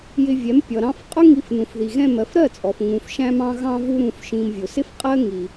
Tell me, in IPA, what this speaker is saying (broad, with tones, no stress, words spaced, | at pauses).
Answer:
jɪ˧vʲɛ˨˦m pʲʌ˨ɾɑ̃˧f qʼʊ˦ŋi˧f nũ˨fði˨ɣɛ̃˦˨mɜ˧f ɾɜ˦˨t͡sʼɔ˨f ŋũ˨fʃæ̃˧mɑ̃˧ ɣɑ̃˧vu˧ɾũ˨fʃĩ˨m vʲʊ˨sɪ˦fqʼɜ˦ ŋi˧